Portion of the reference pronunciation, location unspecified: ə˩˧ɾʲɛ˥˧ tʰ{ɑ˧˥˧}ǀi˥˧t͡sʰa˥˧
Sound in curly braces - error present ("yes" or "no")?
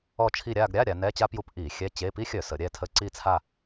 yes